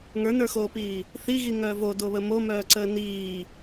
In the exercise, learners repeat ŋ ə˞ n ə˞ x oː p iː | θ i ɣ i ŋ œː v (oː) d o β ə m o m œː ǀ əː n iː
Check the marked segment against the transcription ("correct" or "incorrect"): incorrect